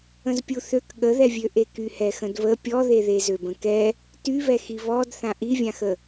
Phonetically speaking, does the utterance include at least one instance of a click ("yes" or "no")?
no